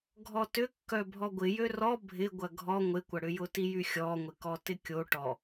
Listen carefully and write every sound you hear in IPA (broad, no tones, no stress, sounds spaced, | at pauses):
ɡʱ ɔ t ʏ kː œ bʱ ɔ ɡʷ ɪ j ø r ɔ bʱ ɪ ɡʷ ɐ ɡʱ ɔ ŋʷ ɪ kʷ ɐ ɽ ʏ j ʊ t i j y xʲ ɔ ŋʷ ɪ k ɔ t ɪ kʲ o ʈ ɔ